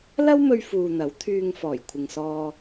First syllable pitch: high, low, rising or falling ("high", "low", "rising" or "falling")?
high